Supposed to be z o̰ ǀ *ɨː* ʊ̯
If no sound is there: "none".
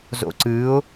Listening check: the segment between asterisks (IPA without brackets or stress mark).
ɨː